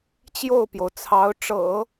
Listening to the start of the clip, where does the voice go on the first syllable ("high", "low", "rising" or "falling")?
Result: falling